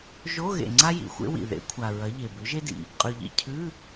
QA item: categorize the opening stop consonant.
click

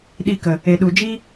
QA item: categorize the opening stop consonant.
implosive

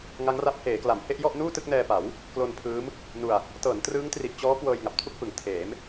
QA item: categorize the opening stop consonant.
plain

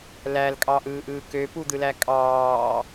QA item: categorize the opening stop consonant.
ejective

